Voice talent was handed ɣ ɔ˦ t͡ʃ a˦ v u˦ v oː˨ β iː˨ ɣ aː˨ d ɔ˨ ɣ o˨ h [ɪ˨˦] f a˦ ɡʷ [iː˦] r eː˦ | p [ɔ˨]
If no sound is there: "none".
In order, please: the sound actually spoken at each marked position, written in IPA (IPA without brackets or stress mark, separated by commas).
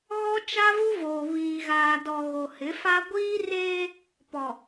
ɪ˨˦, iː˦, ɔ˨